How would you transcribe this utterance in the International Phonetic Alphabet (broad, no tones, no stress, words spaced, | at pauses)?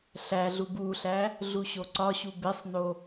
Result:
ɬæɮub uɬæ | ɮuɕoǀɒɕu besˤno